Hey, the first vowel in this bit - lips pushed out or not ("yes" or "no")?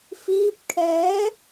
no